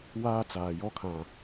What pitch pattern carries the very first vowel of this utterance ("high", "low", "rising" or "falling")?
high